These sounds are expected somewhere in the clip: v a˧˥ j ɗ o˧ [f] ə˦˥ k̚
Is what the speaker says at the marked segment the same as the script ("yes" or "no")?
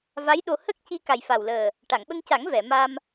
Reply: no